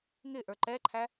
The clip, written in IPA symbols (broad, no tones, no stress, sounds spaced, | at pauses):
ŋ ɪ ʔ ə˞ ǃ ɛ ǃʰ æ